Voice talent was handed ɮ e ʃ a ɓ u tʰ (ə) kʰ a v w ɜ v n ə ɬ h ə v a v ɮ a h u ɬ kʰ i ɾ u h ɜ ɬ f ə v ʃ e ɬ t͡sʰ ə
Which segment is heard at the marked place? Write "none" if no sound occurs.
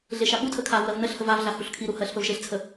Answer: ə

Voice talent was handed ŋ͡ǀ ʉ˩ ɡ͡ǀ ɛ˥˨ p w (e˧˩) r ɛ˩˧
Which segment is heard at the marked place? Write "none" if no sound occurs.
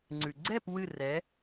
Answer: ɨ˧˩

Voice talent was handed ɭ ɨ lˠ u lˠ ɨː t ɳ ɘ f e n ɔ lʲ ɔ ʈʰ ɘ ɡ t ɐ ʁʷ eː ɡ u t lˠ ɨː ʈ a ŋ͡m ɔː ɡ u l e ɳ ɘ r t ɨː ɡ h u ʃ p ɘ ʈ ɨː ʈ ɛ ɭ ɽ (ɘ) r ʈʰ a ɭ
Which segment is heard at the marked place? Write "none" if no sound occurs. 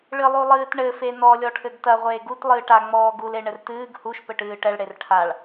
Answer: e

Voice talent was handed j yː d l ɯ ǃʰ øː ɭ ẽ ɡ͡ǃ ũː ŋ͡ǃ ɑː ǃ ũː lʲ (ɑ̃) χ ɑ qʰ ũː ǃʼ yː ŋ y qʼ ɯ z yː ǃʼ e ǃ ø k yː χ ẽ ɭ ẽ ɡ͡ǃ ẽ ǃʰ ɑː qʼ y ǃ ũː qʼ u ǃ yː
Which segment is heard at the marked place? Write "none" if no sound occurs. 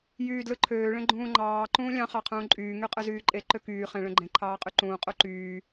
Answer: ɑ̃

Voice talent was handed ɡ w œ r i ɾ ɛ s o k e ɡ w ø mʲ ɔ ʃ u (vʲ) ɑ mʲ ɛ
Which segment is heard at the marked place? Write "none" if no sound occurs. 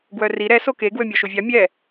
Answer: vʲ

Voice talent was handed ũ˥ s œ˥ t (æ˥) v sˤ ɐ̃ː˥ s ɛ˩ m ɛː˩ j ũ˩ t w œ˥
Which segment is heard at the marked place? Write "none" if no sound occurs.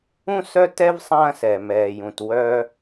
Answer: ɛ˥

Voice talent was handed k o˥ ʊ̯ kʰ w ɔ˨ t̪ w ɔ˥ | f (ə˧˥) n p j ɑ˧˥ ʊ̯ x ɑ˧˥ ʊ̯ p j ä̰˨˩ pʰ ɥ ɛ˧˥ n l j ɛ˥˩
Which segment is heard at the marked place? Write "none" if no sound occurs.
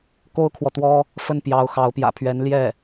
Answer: ə˥˩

